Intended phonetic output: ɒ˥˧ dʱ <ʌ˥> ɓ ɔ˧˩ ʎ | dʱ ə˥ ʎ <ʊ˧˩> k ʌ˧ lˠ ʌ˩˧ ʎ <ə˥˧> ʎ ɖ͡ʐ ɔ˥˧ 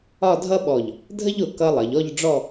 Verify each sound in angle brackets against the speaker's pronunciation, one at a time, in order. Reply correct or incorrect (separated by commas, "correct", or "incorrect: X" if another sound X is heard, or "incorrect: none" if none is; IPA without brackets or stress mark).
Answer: correct, correct, incorrect: ɔ˥˧